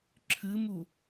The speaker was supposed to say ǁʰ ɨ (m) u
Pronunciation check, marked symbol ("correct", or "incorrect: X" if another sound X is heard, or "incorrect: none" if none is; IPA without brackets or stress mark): correct